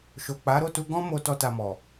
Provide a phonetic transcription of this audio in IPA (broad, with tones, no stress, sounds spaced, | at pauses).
ʃ o˨ k͡p a˨˦ ɾ o˦˨ t u˧ ɡ ɔ̃˦ m o˧ t ɔ˦ t a˧ m ɔ˨